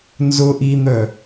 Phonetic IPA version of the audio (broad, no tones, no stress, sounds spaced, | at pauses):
n z ʊ ʔ i n̪ œ